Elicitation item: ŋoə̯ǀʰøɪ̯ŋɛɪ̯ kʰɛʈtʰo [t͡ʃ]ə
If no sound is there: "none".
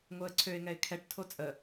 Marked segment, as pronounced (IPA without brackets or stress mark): t͡sʼ